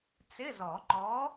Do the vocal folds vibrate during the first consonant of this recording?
no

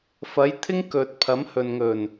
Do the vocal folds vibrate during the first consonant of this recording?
no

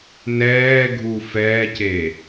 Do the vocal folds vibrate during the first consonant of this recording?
yes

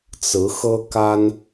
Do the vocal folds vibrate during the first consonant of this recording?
no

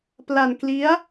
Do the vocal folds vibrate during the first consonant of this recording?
no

